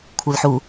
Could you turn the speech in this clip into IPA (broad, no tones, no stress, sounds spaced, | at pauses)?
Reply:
kʷʰ e l ħ u